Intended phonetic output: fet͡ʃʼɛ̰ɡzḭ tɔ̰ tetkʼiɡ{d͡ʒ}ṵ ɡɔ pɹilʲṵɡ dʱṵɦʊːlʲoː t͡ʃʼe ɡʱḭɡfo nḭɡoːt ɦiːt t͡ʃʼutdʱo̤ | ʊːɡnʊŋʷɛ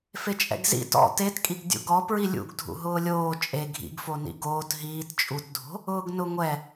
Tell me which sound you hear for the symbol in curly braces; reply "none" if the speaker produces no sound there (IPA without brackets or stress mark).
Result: dʲ